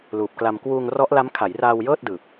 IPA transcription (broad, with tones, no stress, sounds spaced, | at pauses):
l uː˨˩ p̚ k l a˧ m k w uː˧ ŋ r ɔ˦˥ ʔ l a˦˥ m kʰ a˩˦ j r aː˧ w j ɤː˥˩ t̚ d ɯː˨˩ p̚